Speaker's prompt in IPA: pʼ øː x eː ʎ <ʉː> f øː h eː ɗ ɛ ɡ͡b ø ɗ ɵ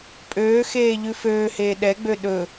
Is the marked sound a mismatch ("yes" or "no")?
yes